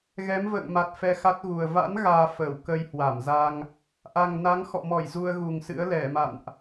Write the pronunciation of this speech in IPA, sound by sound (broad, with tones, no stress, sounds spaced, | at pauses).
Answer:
ɣ ɛ˨˦ m v ə̰ː˧˨ ŋ m a˨˩ t̚ f ɛ˧ x a˦˥ t̚ ɣ u˨˩ ə̯ v a̰˧˥ n ɣ aː˧ f əː˧˩ w k ə˧ j h w a˧˩ m z a˧ ŋ | ʔ a˨˩ ŋ n a˨˦ ŋ x ɔ̰˧˨ m ɔ˧˩ j z u˧ ə̯ ɣ u˨˩ ŋ s ɨ̰˧˥ ə̯ l ɛ˧˩ m a̰˧˨ n ʔ